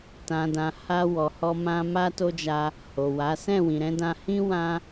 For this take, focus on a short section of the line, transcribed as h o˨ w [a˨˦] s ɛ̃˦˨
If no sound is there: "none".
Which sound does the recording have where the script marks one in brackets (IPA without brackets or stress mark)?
a˨˦